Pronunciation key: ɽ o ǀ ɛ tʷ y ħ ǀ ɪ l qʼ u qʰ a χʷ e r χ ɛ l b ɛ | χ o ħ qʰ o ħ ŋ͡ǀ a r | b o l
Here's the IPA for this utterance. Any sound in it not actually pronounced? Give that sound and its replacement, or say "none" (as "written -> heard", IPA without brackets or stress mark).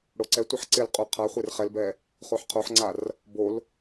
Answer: y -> ɪ